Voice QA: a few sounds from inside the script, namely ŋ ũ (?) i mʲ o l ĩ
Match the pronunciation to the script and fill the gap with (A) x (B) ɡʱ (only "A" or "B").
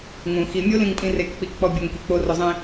A